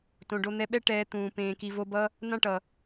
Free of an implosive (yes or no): no